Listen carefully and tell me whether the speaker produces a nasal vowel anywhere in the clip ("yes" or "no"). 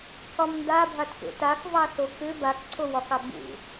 no